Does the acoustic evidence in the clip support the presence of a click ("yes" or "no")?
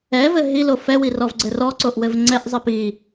yes